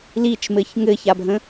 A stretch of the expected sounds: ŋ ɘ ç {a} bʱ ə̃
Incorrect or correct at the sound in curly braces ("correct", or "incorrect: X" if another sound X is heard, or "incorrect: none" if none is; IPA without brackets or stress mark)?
correct